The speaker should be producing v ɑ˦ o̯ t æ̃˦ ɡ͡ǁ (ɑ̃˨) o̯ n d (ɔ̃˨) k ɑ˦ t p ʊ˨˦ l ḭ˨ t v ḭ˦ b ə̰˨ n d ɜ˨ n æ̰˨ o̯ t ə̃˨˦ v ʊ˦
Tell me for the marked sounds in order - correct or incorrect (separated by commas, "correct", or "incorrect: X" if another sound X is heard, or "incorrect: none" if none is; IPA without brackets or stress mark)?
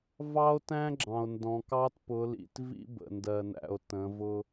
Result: correct, correct